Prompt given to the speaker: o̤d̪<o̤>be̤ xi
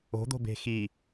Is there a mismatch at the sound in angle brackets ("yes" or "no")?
no